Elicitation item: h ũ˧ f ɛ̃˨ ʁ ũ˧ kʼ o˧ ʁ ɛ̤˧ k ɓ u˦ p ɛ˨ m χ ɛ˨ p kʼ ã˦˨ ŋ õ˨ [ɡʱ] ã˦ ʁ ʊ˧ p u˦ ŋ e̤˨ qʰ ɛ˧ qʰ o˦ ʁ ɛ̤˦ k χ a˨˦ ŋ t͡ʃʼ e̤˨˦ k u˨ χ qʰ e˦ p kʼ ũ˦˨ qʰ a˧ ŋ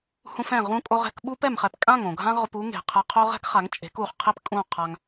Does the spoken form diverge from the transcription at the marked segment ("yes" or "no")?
no